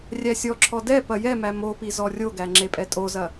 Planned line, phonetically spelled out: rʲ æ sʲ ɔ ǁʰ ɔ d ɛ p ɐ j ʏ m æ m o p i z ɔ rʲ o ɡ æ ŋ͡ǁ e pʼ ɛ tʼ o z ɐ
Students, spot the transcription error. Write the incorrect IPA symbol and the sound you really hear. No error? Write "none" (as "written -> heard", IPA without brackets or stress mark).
ʏ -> ɛ